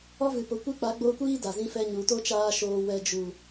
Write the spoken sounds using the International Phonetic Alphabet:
ɔ˦vɨ˨po˨ kʷe˦k͡pa˨˦ɡ͡boː˧kʷiː˦ da˨zĩ˦fɛ˦ ɲu˨to˦ t͡ʃaː˧ ʃoː˧wɛ˧ d͡ʒu˨

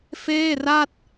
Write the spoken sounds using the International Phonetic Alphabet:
feː˥˩ra˥˩t̚

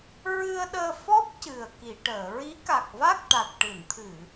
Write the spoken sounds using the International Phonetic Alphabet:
ɹɨ˧ə̯ɗəː˧fɔ˦˥p̚ cɨ˨˩ə̯ki˨˩˨ʈəː˨˩˨ ɹi˧˥ ka˨˩k̚va˦˥k̚ʈa˨˩t̚ ʈɨ˨˩˨nt̪ʰɨ˨˩˨

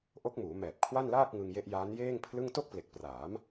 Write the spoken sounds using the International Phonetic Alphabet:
ʔo˦˥k̚muː˩˦mɛː˨˩p̚ kʰwa˥˩nlaː˥˩k̚ ŋɯ˧ŋje˦˥ʔjaː˦˥n jeː˥˩ŋpʰlɯ˥˩ŋ to˥˩k̚ple˨˩k̚praː˩˦m

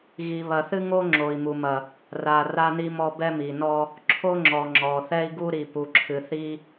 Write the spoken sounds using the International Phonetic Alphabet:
ɣi˨βɐ˨θɨ˦ŋo˦ ŋ͡ǁo˨i̯mu˨mɐ˨ | ra˨ ra˦ni˦mɔ˦ bɛ˦mi˨nɔ˦ | ǁʰo˦ŋ͡ǁɔ˨ ŋ͡ǁɔ˨θɛ˦i̯ ɡu˦ɾi˨pu˨ǁʰɨ˨ θi˦

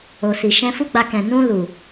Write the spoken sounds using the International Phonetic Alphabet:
o˨si˨ ʃɛ̃˧fu˦ ɡ͡ba˧ kɛ̃˨ nũ˧ lu˨

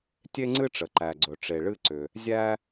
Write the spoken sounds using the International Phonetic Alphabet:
tʲe˥ŋ͡ǀɨ˥ʈ͡ʂə˩ ǃæ˩ɡ͡ǀɵ˩ʈ͡ʂe˩ ɭɨ˥ǀʏ˩ | zʲæ˥

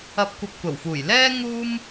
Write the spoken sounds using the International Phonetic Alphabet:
ɐ˧p̚ kʷɐ˧p̚kʷɐ˨˩wfuː˨˩j lɛː˥ ŋuː˥m

